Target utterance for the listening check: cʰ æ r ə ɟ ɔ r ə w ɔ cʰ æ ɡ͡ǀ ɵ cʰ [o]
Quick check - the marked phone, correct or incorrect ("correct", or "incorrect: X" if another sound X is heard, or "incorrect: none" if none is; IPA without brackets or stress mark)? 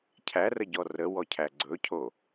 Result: correct